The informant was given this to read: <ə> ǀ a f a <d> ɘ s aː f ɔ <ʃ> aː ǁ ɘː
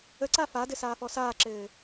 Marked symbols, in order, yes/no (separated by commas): yes, yes, no